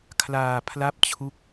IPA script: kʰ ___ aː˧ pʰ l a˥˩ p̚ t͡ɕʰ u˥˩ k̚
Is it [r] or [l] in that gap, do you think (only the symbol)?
l